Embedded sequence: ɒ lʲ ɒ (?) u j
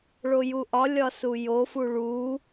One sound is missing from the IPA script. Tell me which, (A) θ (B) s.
B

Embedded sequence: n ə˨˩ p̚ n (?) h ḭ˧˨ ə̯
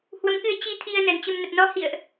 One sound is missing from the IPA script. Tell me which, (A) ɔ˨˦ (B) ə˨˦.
A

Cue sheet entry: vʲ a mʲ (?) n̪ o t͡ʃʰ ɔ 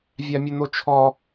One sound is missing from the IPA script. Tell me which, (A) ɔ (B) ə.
B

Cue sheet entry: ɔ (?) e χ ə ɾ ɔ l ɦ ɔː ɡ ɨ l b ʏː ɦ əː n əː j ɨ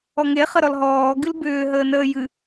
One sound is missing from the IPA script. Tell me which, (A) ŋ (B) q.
A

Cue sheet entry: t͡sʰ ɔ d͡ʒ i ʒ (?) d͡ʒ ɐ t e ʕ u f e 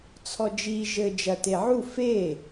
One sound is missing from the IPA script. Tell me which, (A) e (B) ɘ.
B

